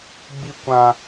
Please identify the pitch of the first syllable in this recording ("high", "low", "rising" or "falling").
high